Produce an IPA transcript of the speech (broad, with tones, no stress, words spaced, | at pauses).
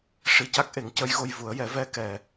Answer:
ʂi˨˩ca˦˥k̚ʔe˨˩˦ŋ cə˧˥jɣo˧jvu˨˩˦ə̯jɛ˨˩˦ vɛ˧kɛ˨˩˨